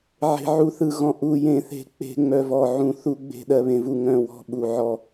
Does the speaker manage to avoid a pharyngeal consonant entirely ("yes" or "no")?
no